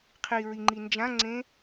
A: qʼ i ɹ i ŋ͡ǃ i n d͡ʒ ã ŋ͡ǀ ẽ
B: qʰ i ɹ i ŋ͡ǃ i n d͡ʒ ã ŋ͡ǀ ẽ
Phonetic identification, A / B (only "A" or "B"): B